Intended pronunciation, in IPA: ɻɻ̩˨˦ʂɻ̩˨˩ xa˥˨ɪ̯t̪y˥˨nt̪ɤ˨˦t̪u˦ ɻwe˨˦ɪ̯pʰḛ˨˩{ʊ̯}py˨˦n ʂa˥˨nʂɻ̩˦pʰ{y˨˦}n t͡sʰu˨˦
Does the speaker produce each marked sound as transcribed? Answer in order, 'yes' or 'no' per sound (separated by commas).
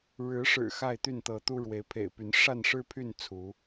no, no